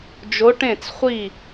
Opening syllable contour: rising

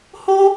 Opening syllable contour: high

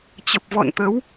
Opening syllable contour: low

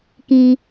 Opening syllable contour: low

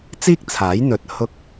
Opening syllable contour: high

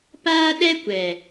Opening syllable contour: high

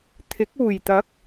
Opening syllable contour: rising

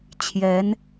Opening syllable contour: rising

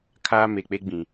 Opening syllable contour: high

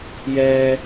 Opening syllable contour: low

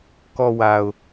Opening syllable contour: low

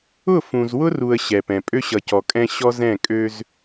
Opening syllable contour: falling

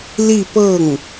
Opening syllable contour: falling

